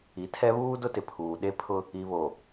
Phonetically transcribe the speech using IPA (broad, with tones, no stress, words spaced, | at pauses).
i˨tʰɛ˦βuː˦dʊ˦ tɪ˨pʰuː˨ɗe˦pʰʊ˦ | i˨βo˨